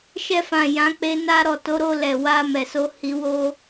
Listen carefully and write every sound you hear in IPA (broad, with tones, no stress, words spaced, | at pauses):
ʃɛ˧fã˨ jã˨˦ k͡pe˧na˧ɾɔ˨ to˨˦ɾo˧ lɛ˨wa˧ mɛ˨so˧ hi˧wo˦